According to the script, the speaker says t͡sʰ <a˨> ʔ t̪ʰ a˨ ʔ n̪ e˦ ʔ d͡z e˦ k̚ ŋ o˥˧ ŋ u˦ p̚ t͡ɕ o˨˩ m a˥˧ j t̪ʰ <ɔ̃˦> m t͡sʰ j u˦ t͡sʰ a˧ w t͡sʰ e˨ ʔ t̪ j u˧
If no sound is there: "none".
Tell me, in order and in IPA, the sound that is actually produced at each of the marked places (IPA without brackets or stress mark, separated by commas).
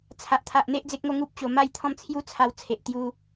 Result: a˨, ɔ̃˥˧